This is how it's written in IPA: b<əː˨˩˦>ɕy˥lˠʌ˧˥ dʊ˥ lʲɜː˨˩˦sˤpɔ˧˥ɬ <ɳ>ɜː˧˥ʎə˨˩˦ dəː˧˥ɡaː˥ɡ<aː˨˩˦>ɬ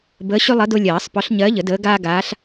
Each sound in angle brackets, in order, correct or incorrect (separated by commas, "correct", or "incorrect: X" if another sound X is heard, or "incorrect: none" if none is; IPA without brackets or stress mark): incorrect: əː˧˥, incorrect: ɲ, incorrect: aː˧˥